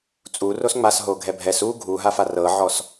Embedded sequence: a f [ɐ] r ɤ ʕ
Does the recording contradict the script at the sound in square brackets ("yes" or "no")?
yes